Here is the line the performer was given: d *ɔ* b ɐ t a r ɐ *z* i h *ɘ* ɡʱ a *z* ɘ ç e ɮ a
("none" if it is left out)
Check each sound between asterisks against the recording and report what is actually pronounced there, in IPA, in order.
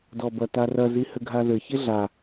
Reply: ɔ, z, ɘ, ð

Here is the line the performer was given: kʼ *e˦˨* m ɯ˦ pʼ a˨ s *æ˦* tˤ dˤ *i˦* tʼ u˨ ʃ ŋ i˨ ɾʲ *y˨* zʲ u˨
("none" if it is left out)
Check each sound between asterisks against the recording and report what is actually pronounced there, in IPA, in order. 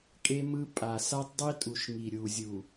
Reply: e˦, a˦, i˦, u˨

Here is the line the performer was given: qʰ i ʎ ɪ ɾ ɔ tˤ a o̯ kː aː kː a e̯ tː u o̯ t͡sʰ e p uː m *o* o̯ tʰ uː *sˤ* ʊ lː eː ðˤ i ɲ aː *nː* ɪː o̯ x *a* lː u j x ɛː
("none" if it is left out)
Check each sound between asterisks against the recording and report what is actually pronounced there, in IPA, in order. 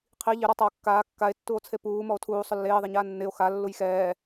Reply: ɔ, sˤ, nː, a

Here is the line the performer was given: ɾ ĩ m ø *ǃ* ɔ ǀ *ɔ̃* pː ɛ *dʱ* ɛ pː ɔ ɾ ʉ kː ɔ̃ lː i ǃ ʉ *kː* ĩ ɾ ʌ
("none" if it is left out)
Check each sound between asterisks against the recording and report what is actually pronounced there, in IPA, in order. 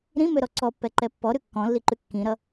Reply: ɾ, ɔ, ǃ, kː

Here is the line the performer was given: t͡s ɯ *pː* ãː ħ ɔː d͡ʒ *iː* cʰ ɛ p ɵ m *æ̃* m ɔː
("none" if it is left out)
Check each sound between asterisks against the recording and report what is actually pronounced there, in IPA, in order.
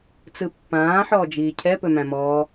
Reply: pː, iː, æ̃

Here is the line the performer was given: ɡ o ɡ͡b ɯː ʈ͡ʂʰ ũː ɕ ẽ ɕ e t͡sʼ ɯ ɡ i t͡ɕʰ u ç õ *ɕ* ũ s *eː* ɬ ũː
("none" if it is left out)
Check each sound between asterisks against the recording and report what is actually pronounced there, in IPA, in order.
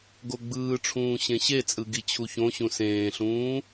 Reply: ɕ, ẽː

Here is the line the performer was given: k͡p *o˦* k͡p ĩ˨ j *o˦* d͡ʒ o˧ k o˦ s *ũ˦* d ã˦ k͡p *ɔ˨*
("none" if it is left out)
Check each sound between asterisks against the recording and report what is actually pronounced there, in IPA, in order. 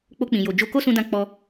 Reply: o˧, o˨, ũ˦, ɔ˧

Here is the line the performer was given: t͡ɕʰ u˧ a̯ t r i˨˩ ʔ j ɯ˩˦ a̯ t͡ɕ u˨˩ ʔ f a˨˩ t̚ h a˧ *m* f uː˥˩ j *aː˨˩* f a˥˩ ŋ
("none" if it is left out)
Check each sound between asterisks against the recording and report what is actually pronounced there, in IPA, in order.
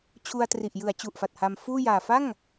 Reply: m, aː˨˩

